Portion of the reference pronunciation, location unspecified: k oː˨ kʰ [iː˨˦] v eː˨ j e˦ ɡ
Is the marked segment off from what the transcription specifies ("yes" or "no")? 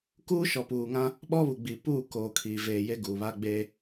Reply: yes